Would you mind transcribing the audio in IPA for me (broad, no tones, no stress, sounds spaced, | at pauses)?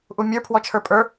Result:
ʔ u mʲ ə˞ pʰ w ɔ t͡ʃʰ ə˞ pʼ ə˞